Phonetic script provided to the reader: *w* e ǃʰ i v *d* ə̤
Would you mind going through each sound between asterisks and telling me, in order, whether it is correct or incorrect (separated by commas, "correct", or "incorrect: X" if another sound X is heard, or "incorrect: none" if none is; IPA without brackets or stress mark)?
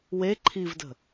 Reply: correct, correct